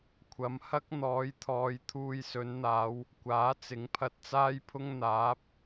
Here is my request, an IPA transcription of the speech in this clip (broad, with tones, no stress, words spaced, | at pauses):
kʷʰɐ˨mhɐ˥k̚ n̪ɔː˨˧jt̪ʰɔː˨˧j t̪ʰuː˨jsɵ˨˧nn̪aː˨˧w | kʷaː˨˥t͡sɪ˨˥ŋpʰɐ˧t̚ t͡saː˥jpʰʊ˥ŋ n̪aː˨˥p̚